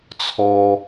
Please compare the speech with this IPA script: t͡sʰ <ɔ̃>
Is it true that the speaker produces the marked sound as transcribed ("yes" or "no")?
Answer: no